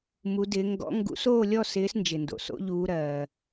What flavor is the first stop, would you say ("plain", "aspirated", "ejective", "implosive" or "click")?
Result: plain